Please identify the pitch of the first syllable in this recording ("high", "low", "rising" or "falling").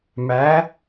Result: rising